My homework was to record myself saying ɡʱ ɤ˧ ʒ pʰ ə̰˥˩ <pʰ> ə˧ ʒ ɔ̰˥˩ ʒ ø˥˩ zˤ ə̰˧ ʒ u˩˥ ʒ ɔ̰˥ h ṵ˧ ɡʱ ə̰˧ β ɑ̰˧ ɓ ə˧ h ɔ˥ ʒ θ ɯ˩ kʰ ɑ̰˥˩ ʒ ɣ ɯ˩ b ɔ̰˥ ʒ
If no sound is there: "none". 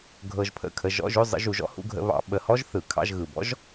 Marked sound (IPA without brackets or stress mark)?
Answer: kʰ